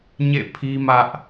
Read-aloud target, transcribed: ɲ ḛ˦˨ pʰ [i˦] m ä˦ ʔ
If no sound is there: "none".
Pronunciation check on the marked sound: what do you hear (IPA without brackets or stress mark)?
i˦